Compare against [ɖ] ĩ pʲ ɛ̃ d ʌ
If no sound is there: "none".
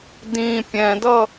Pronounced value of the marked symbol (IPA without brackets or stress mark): d